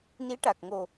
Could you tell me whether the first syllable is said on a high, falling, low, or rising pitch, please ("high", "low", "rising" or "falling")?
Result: rising